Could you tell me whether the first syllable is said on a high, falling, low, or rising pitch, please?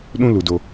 high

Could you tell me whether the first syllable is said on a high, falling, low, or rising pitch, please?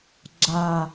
low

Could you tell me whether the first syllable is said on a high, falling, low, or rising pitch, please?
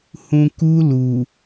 low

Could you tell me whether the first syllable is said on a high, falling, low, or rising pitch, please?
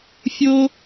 high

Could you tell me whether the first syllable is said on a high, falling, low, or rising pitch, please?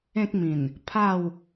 high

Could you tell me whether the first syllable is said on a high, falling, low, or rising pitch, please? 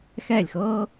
falling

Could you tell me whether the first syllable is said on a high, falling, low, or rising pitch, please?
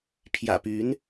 low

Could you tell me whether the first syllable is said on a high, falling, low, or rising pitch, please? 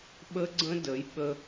high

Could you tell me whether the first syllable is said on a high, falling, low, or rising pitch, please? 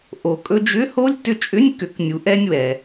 low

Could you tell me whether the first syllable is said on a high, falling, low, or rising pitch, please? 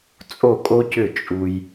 falling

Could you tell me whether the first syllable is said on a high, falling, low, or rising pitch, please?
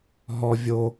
high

